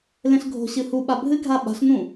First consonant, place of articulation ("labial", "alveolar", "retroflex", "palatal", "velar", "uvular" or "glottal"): alveolar